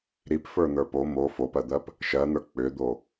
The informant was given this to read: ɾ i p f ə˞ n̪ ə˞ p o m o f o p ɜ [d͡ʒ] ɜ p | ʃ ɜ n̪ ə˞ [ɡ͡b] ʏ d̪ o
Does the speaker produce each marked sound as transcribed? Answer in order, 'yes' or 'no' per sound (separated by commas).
no, no